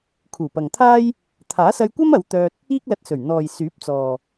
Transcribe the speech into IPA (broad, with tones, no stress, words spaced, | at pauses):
kʰuː˨˩pɐ˨ŋt̪ʰaː˥j | t̪ʰaː˨˥sɐ˧jkʷɐ˥mɐ˨˧w t̪œː˧t̚ | iː˥k̚lɐ˧t̚sɵ˨˩ɥ n̪ɔː˨jsyː˨˥p̚ t͡sɔː˨